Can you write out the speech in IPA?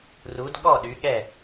r u˨˦ d ɠ ɔ˥˨ ɗ y˨˦ ɠ ɛ˥˨

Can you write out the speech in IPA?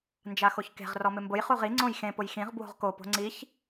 n d͡ʒ a x o ç k e̤ ʁ r ɔ m ɪ m b ʊ j χ u ʁ i ŋ͡ǀ õ j x ẽ p ʊ j x ĩ ʁ b w o̤ ʁ k o p o̤ ŋ͡ǀ i ç

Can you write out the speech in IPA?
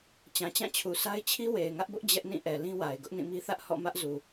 t͡ɕ ã˨ t͡ɕ ã˦˨ t͡ɕʰ u˨ sʰ a˦ ɪ̯ t͡ɕʰ i˦ w e˨ ɪ̯ ŋ ä˦ ʔ b ʊ˦ ʔ d͡ʑ ɛ˦ ʔ n ĩ˦˨ ʔ ɛ˨ l ĩ˦ w a˨ ɪ̯ ɡ ʊ˦ ʔ n ĩ˦˨ m i˦ θ ä˦ ʔ h ɔ̰˦˨ m ä˦ ʔ z u˨

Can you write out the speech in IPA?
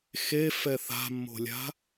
x e f ɛ θ a̤ mː o̤ lʲ a̤

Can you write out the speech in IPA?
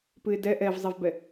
p ɨ ɪ̯ d ɛ ʔ ɛ v zˤ i v b ɛ

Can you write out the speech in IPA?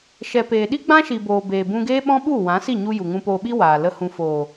ʃ ɛ˨ p eː˨ ɗ i˦ ɡ͡b ã˦ ʃ i˨ b oː˨ b eː˨ b ũ˧ ɡ eː˦ ɓ ɔ̃˦ ɓ u˦˨ w ã˨˦ s i˦˨ ɲ u˧ j u˨ ŋ ũ˧ p oː˧ ɓ i˦ w aː˨ l ə˧ h ũ˨ f oː˨

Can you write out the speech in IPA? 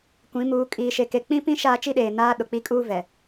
kʷ ĩ˨˦ m uː˨˦ kʼ iː˨ ʃ e˨ k e˨ k͡p ĩ˦ p ĩ˦ ʃ aː˦ t͡ʃ i˦ ɗ eː˨ n aː˦ ɗ ʊ˨ k͡p i˦ kʼ uː˦ v ɛ˨

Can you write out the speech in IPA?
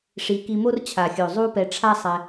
ʂ i˧ k i˧ m o˦ r t͡ɕʰ a˨ xʲ o˨ zˤ u˦ p ɛ˧ ʈ͡ʂʰ a˦ sˤ ɛ˧

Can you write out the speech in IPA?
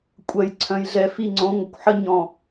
kʷʼ ɜ˨ j ǀʰ œ̃˨ j ɮ ɛ˨ f i˦˨ ŋ͡ǀ õ˨˦ ŋʷ ə˨ kʷ ħ ə˦ ɲ ɔ̃˨

